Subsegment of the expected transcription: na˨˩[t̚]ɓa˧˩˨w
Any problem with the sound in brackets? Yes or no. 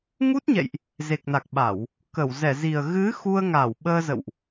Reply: yes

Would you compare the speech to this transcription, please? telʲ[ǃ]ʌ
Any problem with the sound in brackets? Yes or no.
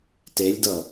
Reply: yes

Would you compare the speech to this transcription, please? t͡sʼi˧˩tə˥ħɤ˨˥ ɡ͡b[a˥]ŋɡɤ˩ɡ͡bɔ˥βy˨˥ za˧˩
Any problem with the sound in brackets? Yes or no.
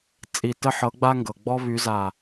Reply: no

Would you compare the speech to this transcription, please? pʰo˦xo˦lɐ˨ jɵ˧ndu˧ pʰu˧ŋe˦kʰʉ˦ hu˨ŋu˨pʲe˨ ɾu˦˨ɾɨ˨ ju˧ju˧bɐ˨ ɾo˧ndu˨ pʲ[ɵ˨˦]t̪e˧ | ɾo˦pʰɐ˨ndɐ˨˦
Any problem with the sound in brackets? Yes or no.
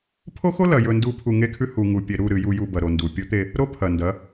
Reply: no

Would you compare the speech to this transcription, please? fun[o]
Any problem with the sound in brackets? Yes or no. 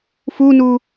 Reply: yes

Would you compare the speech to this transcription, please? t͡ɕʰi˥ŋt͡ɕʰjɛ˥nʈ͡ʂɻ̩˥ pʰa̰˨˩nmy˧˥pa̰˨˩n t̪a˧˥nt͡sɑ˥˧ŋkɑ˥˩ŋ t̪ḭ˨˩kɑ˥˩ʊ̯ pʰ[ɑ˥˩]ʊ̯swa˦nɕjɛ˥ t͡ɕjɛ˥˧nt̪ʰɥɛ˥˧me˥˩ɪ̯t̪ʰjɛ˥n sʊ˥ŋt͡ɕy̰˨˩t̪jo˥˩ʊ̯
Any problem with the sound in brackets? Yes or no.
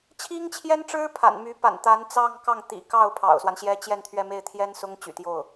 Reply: yes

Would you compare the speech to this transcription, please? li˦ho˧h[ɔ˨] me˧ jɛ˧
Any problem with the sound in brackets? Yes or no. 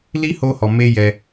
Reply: no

